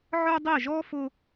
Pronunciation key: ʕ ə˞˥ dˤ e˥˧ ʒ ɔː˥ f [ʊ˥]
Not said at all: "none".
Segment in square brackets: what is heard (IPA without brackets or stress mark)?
ʊ˥